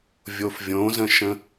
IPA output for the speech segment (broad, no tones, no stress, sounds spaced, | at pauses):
vʲ o f vʲ õ z ə̃ ʃ ə̃